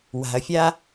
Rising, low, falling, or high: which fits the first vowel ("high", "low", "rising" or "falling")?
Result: low